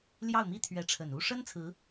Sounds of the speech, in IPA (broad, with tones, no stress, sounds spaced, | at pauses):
l j ɑ˥˩ ʊ̯ m i˥ t̪ʰ ɥ ɛ˧˥ ʈ͡ʂʰ ə˨˩ n u˥ ʂ ə˥ n t͡sʰ ɹ̩˧˥